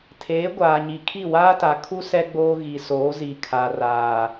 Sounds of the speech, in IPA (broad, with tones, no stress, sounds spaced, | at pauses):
tʰ eː˨˦ ɡʷ aː˨ ɲ i˨ kʰ i˦˨ w aː˦ t a˨ kʰ u˦ s ɛ˦ ɡ͡b oː˦ ɣ i˨ s oː˨˦ z i˨ kʰ a˨ r aː˨